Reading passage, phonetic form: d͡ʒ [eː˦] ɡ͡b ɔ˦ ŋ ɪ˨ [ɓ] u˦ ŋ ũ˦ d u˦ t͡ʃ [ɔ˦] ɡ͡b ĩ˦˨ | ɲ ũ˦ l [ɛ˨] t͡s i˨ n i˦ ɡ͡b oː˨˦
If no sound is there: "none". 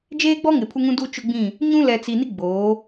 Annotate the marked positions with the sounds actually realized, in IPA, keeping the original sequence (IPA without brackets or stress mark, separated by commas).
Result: eː˦, pʰ, ʊ˦, ɛ˨